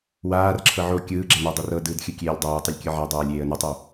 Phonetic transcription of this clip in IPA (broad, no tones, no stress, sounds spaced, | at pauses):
w aː r ǁʰ ɤ ʕ o kʲ ɯː ɡ͡ǁ ɛ n ɛ dˤ i r ɤ d ɯː d xʲ ɯ kʲ eː lʲ dˤ aː tˤ ɯ lʲ kʲ ɯ ʕ a dˤ ɤː lʲ eː ə̯ n ɤ tˤ o